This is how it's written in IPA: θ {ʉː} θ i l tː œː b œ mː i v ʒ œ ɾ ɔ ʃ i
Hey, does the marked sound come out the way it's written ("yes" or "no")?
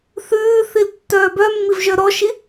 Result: yes